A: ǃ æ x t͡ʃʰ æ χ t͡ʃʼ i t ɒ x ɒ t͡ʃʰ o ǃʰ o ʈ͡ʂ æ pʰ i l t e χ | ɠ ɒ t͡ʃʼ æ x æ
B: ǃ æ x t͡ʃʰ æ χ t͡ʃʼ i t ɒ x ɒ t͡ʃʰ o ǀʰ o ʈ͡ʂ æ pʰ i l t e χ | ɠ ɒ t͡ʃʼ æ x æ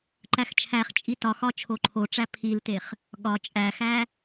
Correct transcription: A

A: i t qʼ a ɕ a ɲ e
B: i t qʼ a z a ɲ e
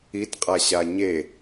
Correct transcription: A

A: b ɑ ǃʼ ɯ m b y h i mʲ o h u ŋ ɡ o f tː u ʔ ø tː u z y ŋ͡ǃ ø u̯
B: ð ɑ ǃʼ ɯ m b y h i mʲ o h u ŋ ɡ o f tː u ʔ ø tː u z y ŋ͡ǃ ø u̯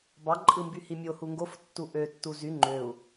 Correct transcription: A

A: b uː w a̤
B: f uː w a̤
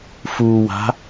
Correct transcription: B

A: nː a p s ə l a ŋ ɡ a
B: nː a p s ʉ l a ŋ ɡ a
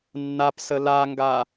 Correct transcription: A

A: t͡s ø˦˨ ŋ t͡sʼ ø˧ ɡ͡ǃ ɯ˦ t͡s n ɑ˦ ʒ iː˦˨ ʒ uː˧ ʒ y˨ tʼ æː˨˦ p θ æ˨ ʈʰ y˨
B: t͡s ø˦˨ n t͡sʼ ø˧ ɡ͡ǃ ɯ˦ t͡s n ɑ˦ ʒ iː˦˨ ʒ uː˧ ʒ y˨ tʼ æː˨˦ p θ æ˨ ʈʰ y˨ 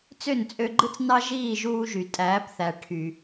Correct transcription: B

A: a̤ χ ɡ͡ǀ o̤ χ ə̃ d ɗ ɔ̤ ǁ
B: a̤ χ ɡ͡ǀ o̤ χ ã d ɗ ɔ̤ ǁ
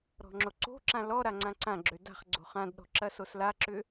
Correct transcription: B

